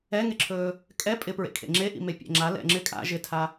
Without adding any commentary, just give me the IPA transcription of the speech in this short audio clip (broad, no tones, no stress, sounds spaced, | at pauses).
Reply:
ɛ ŋ ɪ ǁʰ ɵː | kʼ ɛ pʼ ɪ p ɹ ḛ kʰ ḛ ŋ͡ǁ e ʔ ḭ m e pʲ ɛ̰ ŋ͡ǁ a l ɛ̰ ŋ͡ǁ ɪ kʼ a̰ ʒ ɪ tʰ a